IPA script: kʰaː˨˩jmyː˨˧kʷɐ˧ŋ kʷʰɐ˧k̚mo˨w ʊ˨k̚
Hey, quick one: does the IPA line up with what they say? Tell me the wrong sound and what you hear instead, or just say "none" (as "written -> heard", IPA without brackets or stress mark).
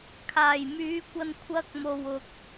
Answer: ŋ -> n